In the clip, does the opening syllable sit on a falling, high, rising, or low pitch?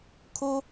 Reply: high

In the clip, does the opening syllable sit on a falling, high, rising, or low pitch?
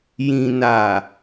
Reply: low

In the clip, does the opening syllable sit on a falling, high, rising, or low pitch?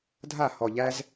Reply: falling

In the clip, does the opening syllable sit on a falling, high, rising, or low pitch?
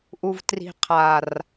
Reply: low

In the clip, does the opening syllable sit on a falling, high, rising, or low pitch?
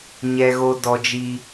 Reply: low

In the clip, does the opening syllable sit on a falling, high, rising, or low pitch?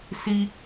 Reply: high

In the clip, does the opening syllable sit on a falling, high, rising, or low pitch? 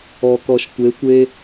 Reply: low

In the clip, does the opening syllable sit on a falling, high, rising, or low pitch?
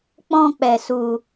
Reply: high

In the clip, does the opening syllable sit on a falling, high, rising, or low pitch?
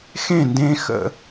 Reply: falling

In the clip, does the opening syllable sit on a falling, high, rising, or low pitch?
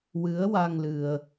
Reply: rising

